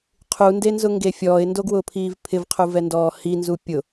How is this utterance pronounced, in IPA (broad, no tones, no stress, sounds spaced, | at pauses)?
qʰ u n d e n z ʊ ŋ ɡ e fʲ ɔː ɪ̯ n d o ɡ w ʊː pʰ iː v pʰ ɪ v qʰ u v ɛ n d ɔː h i n z u pʲ ʊ